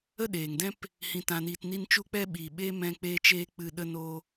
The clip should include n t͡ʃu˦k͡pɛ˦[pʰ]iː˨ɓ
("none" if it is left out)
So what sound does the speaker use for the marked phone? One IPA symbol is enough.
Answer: ɓ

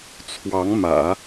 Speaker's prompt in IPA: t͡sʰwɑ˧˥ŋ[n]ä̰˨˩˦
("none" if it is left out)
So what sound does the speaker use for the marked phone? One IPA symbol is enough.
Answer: m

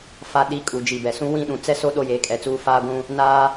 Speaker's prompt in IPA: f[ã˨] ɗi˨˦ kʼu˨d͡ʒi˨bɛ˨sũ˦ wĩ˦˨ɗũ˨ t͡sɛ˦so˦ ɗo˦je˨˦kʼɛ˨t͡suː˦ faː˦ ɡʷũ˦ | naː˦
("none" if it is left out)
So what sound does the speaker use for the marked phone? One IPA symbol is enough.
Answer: a˨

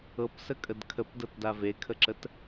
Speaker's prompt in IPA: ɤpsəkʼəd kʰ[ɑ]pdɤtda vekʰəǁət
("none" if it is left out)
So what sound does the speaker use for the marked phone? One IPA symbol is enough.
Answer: ə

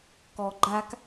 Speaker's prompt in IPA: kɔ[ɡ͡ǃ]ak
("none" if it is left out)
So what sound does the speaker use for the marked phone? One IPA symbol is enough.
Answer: ɡ͡ǃ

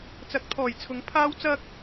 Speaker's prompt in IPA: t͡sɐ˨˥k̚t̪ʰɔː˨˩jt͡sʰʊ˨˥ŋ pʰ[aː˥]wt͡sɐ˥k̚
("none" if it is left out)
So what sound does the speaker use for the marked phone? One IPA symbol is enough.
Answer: aː˥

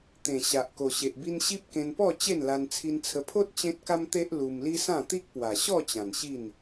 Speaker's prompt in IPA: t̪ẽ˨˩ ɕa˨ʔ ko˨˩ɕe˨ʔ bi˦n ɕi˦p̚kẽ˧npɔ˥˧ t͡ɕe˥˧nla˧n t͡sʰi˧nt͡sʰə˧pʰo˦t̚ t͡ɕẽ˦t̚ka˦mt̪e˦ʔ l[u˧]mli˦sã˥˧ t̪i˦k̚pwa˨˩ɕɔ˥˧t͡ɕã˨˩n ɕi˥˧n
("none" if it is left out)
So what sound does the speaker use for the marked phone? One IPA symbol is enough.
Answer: u˧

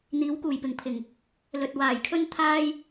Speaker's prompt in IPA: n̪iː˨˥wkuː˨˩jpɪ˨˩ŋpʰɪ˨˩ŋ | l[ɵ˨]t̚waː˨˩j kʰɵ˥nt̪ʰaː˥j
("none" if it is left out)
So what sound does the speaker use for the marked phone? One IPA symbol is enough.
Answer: ɵ˨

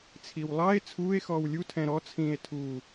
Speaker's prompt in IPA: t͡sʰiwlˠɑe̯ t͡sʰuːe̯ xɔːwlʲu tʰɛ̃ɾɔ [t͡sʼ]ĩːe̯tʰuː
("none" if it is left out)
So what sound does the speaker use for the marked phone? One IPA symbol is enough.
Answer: t͡sʰ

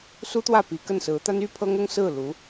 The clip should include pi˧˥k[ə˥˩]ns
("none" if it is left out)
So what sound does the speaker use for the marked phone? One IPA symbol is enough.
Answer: ə˥˩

